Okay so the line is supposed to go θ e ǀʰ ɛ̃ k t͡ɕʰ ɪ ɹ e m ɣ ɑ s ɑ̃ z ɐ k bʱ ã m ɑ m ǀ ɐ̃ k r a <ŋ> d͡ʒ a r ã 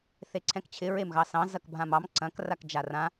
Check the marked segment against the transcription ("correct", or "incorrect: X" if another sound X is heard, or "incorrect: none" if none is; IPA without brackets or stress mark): incorrect: k